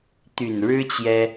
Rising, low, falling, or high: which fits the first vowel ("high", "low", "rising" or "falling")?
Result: low